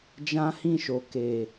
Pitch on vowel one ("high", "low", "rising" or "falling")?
high